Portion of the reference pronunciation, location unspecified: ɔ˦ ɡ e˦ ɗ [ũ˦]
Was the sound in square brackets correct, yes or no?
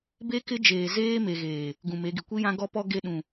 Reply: no